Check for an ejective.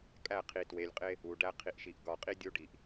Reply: present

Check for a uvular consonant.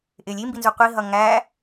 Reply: present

